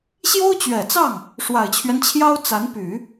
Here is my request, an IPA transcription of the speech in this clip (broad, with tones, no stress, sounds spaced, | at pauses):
ɕ j o˥ ʊ̯ t͡ɕ ɥ ɛ˨˩ t͡s ɑ˥˩ ŋ | ʂ w a˨˩ ɪ̯ t͡ɕʰ ɥ ɛ˦ n t͡ɕʰ j ɑ˥ ʊ̯ t͡s a˧˥ n p y˨˩˦